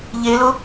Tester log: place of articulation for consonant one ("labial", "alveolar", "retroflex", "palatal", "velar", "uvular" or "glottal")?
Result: palatal